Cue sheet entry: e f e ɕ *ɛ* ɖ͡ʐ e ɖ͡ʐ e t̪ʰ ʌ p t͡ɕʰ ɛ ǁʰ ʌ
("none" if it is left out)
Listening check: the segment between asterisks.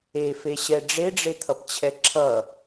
ɛ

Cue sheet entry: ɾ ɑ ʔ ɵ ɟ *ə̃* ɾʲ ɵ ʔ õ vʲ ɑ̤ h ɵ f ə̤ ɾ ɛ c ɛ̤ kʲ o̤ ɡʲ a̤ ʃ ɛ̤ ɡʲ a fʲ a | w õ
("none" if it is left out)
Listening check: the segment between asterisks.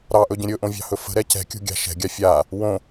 ə̃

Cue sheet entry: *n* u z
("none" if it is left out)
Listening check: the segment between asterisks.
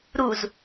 ɾ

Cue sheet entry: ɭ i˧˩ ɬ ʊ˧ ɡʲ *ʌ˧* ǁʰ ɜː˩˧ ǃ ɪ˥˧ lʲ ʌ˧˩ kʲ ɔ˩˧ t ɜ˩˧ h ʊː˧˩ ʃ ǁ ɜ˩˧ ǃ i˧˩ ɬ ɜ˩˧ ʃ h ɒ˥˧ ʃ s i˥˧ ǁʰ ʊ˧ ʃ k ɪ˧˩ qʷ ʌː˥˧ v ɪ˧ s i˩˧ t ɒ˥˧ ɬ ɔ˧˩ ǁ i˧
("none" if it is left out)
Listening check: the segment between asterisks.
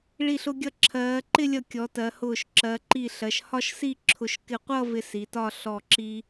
ʌ˧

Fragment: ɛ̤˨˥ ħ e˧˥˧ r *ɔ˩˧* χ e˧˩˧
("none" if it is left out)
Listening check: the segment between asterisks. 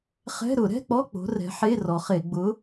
ɔ˩˧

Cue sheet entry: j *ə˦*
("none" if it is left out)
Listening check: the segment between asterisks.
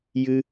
ɨ˦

